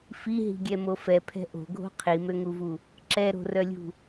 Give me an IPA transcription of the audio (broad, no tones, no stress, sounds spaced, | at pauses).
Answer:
f i ɦ i̤ ɡʲ ɛ m o f ɛ pʰ ɛ̤ ʔ o̤ ɡʱ o̤ qʰ i m ø ŋ u v u | ǁ ɛ ɾ o̤ r œ lʲ ṳ